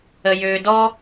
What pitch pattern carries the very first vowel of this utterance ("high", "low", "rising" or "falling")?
low